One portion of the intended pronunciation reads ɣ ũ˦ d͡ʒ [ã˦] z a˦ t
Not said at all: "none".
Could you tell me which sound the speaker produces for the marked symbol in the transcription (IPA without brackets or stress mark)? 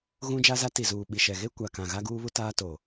a˦